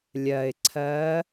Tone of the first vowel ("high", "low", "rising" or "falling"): low